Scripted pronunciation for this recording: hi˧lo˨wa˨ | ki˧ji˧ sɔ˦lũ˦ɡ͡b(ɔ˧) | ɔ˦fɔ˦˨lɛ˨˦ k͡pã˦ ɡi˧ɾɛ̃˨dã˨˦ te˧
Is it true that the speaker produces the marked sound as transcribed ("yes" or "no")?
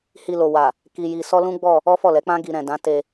no